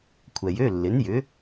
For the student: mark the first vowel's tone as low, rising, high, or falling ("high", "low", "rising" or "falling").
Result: low